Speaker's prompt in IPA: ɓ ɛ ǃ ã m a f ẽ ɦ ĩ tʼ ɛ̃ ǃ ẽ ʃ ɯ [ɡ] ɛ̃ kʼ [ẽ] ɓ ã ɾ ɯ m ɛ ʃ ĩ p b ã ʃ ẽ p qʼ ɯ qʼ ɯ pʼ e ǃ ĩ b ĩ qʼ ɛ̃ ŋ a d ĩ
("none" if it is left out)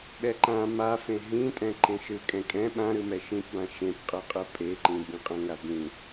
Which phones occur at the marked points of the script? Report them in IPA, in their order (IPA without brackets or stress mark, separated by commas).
kʼ, ɛ̃